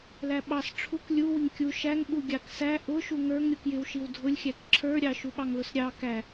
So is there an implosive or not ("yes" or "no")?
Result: yes